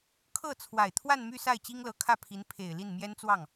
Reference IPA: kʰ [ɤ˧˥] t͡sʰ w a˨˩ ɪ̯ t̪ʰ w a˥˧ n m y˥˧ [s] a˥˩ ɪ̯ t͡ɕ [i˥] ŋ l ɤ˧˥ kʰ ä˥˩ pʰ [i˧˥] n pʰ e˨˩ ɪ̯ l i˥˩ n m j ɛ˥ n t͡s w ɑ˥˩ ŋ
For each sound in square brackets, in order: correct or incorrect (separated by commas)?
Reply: incorrect, correct, correct, correct